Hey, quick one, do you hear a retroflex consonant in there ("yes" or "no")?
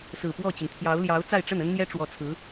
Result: yes